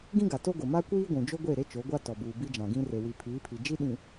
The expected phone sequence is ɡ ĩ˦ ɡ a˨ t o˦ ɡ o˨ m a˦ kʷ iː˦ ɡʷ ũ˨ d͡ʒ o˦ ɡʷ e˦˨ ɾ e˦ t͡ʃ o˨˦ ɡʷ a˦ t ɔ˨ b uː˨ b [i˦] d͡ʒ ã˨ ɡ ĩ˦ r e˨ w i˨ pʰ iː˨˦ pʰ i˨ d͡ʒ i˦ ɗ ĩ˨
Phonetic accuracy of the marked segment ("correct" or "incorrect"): correct